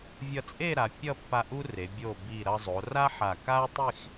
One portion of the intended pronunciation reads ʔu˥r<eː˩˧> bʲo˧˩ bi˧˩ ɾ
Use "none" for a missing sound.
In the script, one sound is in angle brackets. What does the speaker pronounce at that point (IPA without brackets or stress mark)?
e˩˧